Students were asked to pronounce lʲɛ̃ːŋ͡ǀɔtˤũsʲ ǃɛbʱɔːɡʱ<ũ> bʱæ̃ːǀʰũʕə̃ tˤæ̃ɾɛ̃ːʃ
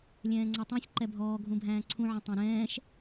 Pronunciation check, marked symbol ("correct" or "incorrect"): correct